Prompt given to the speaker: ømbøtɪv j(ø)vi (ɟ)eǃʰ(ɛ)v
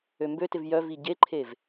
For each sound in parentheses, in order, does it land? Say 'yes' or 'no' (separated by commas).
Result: no, yes, no